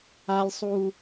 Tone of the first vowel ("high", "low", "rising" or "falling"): high